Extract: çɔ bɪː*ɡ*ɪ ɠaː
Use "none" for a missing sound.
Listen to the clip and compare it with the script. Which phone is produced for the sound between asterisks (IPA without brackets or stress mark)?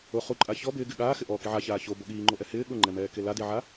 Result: ɡ